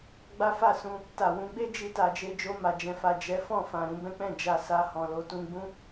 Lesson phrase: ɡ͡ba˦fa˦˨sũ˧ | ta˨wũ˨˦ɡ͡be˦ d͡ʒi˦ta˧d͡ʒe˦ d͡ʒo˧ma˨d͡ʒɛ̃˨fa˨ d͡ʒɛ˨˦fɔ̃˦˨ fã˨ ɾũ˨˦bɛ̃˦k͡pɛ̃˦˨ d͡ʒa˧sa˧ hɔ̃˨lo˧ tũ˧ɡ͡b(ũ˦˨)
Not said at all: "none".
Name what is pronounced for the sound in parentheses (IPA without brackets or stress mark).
ũ˦